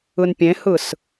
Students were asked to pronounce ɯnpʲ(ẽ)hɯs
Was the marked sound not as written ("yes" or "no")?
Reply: no